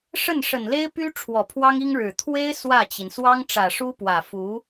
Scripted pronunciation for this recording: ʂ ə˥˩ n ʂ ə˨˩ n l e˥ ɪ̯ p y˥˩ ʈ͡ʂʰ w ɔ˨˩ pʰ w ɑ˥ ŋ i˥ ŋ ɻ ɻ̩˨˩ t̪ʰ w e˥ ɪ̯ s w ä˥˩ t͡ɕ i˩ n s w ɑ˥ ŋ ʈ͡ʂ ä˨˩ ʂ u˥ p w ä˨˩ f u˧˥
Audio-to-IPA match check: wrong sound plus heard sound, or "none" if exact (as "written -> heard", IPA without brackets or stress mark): y˥˩ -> y˥